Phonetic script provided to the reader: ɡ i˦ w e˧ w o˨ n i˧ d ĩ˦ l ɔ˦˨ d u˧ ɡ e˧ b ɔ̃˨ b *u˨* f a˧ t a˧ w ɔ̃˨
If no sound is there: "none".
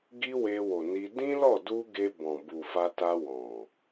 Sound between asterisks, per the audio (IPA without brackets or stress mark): u˨